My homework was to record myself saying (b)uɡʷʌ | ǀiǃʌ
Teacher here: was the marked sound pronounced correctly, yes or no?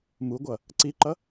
no